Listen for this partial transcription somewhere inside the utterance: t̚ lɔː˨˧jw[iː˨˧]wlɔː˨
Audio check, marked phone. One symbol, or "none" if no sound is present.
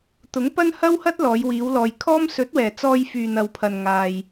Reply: iː˨˧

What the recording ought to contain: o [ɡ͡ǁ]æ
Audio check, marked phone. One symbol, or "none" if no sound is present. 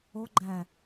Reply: ɡ͡ǃ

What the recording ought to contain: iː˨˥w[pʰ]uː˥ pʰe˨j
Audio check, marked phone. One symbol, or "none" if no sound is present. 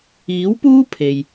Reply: p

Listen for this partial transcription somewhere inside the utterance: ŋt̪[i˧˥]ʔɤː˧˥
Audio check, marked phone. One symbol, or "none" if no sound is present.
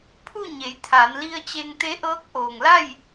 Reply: e˧˥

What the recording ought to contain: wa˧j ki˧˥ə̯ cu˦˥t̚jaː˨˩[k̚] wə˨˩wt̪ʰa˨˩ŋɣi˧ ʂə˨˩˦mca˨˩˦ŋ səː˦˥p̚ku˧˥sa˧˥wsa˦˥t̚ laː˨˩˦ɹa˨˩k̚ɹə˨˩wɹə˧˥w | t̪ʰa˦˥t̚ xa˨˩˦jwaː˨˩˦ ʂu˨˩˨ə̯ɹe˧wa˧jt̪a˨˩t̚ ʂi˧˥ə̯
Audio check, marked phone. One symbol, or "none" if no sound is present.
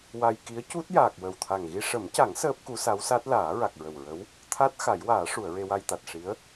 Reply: k̚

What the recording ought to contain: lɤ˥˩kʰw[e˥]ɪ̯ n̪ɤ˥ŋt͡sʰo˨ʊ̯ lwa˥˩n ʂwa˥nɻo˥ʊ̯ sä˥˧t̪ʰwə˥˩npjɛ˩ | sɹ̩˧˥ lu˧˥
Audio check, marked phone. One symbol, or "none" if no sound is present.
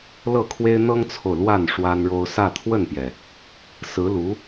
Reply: e˥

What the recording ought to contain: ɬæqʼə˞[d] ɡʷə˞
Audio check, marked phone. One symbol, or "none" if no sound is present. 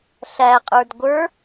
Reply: d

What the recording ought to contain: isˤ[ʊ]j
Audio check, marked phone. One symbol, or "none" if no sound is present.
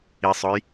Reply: ʊ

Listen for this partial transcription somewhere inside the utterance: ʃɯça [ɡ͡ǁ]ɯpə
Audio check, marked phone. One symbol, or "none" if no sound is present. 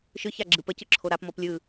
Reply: ɡ͡ǁ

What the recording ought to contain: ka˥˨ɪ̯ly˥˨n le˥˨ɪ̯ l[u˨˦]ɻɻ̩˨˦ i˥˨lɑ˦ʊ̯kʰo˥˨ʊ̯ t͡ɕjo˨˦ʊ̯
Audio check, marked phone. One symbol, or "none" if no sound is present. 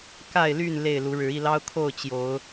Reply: u˨˦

